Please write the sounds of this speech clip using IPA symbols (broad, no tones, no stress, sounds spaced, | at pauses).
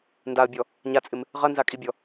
n d a ə̯ bʲ ɔ | ɲ a t͡sʼ ɪ m | ʁ ɐ n z a kʼ i bʲ ɔ